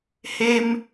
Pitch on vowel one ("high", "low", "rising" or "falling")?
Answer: high